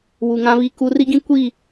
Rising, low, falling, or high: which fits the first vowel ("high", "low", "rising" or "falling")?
low